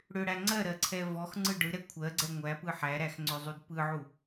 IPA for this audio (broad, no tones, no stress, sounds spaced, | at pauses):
ɽ ʏ ɽ æ ŋ͡ǀ ɜ ɾ ɜ ǀʰ ɛ v ɔ x ŋ͡ǀ ɯ ɖ ɯ ɾ ɛ kʷʰ ɜ ɡ͡ǀ ɛ ŋʷ æ p ɯ ħ æ ɾ æ x ŋ͡ǀ ʏ zˤ u d p ɯ ʕ u